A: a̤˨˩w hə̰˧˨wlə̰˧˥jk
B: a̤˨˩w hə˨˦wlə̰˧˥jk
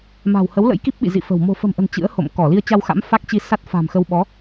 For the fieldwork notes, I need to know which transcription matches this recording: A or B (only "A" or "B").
B